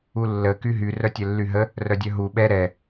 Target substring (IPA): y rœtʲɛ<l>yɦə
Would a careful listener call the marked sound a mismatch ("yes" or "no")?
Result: yes